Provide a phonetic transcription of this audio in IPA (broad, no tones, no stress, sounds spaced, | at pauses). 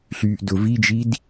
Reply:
ɬ yː ʔ d ʊ v i d͡ʒ i d